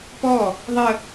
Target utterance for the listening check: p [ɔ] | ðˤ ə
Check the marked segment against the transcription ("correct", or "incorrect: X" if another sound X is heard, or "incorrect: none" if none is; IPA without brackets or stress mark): correct